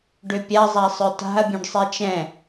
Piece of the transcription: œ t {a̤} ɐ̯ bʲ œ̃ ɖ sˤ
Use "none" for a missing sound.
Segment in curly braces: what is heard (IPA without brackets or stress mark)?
a̤